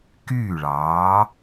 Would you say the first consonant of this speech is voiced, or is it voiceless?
voiceless